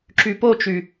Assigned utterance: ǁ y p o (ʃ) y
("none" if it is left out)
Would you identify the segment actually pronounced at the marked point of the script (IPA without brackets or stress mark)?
t͡ʃ